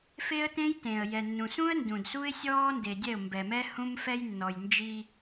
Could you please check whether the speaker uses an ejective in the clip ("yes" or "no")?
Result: no